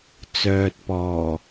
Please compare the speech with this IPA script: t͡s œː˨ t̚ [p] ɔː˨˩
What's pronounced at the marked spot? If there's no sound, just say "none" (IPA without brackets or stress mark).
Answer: p